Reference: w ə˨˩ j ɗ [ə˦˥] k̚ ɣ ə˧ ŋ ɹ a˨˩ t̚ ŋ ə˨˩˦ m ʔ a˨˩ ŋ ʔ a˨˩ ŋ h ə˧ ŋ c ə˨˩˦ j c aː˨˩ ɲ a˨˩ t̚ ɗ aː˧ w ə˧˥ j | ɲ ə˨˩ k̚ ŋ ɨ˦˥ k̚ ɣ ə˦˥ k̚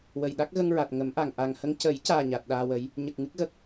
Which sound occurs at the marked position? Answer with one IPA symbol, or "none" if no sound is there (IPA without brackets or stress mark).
a˦˥